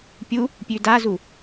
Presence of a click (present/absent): absent